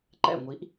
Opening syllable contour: falling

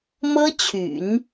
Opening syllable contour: high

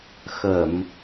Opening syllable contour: low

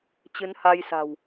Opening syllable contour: rising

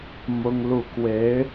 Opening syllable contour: high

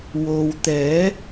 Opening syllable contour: low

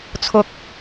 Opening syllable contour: high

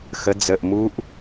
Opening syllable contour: rising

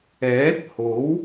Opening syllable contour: rising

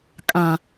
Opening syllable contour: low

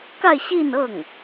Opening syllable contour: falling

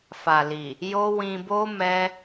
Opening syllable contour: low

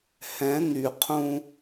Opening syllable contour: rising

